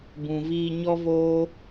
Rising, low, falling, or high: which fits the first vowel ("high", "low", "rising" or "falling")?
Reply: low